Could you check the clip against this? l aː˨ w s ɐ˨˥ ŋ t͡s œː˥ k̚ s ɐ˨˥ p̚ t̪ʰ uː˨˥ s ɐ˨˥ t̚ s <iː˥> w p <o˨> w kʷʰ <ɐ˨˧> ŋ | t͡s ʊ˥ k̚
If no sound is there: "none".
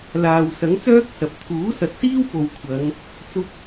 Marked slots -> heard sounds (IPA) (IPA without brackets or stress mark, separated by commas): iː˥, o˨, ɐ˨˧